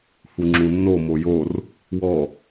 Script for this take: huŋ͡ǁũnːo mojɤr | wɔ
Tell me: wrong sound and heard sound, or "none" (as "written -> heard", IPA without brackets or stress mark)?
ɤ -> o